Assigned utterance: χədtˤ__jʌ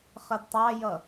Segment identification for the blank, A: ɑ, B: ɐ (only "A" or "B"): A